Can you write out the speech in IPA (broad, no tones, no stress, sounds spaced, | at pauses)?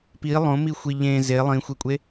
p i lˠ õ m i xʷ i ʎ ẽ z e lˠ ĩ xʷ e kʷʼ e